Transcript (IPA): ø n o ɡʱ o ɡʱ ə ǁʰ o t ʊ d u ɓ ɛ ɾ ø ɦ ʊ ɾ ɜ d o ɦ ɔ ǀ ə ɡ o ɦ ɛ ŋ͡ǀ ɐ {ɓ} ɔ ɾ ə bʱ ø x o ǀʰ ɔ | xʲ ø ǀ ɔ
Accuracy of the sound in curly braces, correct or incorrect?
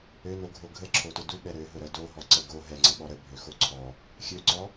correct